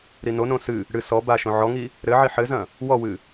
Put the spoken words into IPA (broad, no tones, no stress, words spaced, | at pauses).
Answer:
ɾinonõ sɨ | ɽɨ sɔ baʃõ ʕɔŋi | ɾɘʕi ħɘzɐ̃ | wɔwɨ